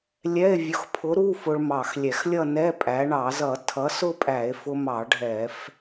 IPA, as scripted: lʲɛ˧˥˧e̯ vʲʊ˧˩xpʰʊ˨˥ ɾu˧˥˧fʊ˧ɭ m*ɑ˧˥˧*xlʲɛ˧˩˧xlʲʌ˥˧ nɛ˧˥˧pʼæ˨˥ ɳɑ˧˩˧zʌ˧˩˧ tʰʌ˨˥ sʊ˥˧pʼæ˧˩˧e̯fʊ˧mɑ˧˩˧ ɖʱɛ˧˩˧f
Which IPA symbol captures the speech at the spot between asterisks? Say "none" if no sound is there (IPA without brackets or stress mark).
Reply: ɑ˧˩